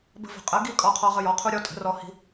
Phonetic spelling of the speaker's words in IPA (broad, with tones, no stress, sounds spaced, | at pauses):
b ə̤˦ v ə̤˩˥ qʼ ə˩˥ ɡ i˦ kʼ ɔ˦ qʰ ɔ˦ ʁ ə˦ j ɔ˩˥ qʰ u˦ ɾʲ ɔ˦ tʼ ə̤˩˥ r ɔ˦ h i̤˦